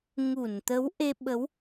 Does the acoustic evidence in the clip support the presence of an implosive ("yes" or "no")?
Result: yes